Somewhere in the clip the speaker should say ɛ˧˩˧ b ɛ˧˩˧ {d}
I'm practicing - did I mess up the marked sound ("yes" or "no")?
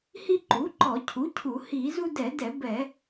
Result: yes